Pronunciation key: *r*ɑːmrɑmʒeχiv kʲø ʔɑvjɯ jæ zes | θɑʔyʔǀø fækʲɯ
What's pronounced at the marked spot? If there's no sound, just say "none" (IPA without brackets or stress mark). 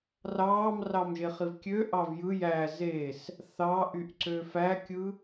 r